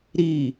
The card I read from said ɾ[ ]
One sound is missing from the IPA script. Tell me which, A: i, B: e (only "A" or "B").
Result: A